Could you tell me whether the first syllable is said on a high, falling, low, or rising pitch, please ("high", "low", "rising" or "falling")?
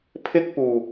high